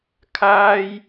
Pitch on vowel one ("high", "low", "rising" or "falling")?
high